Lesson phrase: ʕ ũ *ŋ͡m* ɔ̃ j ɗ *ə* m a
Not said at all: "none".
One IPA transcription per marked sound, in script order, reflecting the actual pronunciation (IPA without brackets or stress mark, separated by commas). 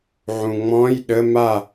ŋ͡m, ə